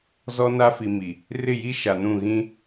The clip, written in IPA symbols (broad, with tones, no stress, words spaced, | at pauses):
zɔ˦na˦fi˨ mi˨ | rɪ˦˨ji˦ ʃa˨nũ˦˨ ɣĩ˦